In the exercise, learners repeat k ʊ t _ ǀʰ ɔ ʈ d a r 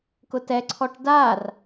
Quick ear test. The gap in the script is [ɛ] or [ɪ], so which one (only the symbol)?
ɛ